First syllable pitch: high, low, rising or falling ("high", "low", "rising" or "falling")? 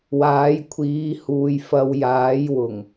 rising